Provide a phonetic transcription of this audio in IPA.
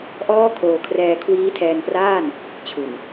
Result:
ʔɔː˥˩kʰoː˧kʰrɛː˧ kʰwiː˦˥tʰɛː˧npraː˥˩n | t͡ɕʰu˨˩n

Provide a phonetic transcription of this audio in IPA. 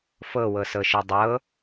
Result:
fɤwɤsɤʃɤ dˤɤ

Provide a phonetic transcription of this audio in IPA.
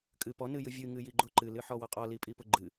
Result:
kʼɨpɔ nɨjɨvʲɨ ŋɨjiɡ͡ǃʊ ǃɨ lɨħɔwɔqʼɔ lipʼipʊɡ͡ǃɨ

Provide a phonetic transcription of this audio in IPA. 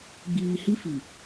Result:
ɡ͡biː˨hi˦ fi˨

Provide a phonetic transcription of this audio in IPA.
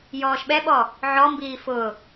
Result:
jɔːʃɓɛɓɔ | ʕɔmbiː fʊ

